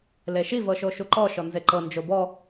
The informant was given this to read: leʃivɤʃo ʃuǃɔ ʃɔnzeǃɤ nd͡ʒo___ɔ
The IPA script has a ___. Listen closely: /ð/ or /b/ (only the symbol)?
b